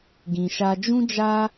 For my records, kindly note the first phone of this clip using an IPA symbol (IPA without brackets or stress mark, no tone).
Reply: ɡ